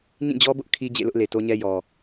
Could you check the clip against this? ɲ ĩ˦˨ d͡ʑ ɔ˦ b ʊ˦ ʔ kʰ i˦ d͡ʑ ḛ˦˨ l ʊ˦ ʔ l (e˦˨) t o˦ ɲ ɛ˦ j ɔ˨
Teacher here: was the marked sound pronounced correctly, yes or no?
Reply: no